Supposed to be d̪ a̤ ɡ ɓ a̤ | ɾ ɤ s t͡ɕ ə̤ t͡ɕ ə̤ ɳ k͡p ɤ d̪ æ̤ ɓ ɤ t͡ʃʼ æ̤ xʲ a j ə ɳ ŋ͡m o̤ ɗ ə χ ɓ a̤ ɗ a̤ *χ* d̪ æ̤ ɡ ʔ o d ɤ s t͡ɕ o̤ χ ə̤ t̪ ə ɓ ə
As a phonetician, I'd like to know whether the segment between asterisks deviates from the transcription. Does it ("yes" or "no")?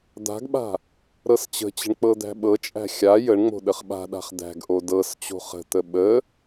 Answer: no